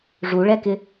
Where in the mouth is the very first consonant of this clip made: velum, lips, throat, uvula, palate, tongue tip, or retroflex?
retroflex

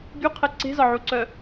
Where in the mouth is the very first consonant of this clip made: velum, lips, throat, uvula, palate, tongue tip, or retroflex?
velum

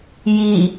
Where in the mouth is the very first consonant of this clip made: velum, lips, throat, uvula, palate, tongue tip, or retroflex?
palate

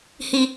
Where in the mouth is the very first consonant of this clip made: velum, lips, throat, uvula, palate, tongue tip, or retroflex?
throat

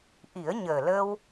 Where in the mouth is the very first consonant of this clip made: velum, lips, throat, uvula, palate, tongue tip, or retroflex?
throat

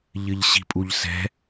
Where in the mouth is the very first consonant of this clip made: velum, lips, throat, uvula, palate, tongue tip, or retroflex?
palate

